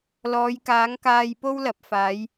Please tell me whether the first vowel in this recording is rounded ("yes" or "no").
yes